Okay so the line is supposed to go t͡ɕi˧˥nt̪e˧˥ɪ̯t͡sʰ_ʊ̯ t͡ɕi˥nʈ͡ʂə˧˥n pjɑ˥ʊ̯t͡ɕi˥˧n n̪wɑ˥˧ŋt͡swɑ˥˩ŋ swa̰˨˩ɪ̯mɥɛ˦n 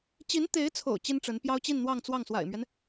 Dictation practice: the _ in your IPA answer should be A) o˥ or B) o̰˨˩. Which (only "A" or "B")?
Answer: B